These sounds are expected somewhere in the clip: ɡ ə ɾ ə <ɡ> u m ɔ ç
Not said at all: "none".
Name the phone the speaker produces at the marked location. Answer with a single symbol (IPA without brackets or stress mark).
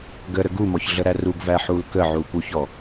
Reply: ɡ